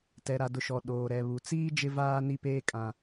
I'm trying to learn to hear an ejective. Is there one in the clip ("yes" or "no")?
yes